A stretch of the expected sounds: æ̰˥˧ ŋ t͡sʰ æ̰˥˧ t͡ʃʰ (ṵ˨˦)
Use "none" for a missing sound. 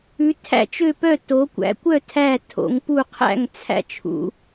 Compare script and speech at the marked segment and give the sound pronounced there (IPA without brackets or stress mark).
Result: ṵ˨˦